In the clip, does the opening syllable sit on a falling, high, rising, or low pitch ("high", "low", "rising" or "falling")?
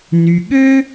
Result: low